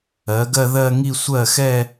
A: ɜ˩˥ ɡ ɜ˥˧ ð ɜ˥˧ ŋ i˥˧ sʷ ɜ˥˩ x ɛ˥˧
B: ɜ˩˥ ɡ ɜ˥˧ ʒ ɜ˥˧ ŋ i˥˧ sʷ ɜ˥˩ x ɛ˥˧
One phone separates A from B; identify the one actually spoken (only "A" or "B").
A